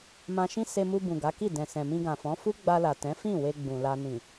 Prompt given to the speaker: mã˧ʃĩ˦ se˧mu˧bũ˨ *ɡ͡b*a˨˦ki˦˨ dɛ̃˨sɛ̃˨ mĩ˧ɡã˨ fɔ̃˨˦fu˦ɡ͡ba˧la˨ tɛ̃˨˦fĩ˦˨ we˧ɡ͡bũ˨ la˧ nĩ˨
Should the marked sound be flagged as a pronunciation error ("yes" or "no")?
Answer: yes